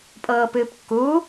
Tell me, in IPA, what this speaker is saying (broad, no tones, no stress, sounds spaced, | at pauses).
pʼ ɤː p ɨː p kː u